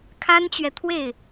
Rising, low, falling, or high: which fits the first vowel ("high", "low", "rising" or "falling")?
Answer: high